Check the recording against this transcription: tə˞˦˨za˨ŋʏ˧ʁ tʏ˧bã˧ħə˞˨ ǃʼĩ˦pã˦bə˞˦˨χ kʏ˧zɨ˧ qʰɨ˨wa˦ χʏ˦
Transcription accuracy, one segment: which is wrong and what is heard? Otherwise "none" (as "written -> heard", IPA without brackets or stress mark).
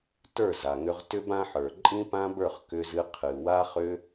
none